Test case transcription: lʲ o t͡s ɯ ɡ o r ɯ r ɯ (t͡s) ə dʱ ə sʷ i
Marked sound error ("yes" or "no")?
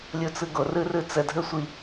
no